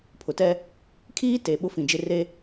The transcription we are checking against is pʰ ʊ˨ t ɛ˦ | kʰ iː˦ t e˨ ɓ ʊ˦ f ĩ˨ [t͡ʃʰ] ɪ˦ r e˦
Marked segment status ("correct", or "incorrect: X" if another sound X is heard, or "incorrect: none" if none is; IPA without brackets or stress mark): incorrect: d͡ʒ